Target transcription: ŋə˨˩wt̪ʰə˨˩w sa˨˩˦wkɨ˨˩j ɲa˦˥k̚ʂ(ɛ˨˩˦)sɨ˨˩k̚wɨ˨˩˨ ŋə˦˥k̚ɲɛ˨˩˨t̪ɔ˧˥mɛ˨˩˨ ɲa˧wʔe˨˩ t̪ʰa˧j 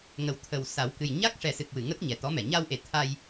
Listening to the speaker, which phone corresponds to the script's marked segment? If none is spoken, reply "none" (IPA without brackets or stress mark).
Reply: ɛ˨˩˦